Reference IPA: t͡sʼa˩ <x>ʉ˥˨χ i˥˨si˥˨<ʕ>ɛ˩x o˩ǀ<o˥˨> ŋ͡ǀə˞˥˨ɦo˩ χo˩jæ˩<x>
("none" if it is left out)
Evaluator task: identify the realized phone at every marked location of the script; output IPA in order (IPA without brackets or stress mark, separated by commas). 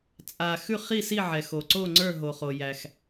x, ʕ, o˥˨, x